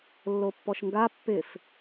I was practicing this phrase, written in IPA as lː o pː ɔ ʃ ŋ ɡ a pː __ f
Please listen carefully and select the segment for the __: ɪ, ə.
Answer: ɪ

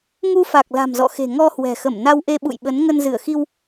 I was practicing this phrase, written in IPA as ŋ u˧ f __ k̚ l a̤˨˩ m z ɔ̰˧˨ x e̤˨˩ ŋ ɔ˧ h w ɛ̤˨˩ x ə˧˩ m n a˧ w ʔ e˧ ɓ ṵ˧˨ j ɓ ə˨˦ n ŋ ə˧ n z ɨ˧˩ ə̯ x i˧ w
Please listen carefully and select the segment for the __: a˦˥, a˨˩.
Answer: a˨˩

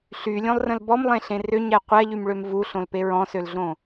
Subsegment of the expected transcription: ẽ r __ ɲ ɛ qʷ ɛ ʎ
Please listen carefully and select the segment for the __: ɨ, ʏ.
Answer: ʏ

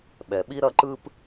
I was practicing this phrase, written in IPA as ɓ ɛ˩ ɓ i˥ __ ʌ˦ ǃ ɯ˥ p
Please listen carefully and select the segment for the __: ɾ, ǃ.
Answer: ɾ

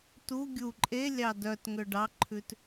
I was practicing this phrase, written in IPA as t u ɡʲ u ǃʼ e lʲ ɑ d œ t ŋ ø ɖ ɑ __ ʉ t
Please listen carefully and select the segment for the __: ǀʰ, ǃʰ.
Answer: ǃʰ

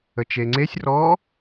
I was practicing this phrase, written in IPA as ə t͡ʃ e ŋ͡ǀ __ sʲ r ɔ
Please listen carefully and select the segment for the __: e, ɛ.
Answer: e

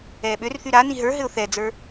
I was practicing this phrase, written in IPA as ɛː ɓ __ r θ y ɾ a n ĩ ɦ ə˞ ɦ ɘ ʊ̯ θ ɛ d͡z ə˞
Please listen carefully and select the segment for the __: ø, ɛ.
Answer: ø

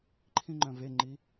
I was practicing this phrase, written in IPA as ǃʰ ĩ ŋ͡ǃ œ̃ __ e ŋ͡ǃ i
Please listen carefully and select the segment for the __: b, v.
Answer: v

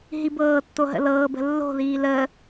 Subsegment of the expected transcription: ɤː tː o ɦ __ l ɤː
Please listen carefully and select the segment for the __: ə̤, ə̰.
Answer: ə̰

